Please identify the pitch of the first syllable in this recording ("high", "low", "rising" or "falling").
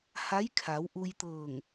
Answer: rising